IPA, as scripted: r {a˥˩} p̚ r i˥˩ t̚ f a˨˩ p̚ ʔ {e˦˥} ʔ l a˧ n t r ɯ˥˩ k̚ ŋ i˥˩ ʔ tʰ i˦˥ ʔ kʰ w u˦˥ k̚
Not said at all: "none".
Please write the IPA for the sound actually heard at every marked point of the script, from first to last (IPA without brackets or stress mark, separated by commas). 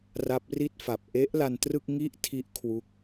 a˦˥, e˦˥